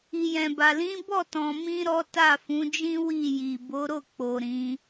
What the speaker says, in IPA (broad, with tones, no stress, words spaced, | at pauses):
i˨jɛ̃˨ba˨ lĩ˨˦bɔ˦˨tɔ̃˨mĩ˧ ɾɔ˦ta˦˨ fũ˨˦d͡ʒĩ˦ wi˦˨ji˨ bo˨˦ɾo˦˨k͡po˨ ɾĩ˨˦